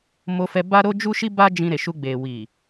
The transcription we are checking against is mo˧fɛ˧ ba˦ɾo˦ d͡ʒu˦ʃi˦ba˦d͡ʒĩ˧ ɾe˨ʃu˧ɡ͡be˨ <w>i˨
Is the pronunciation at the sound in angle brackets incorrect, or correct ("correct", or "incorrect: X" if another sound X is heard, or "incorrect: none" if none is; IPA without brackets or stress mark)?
correct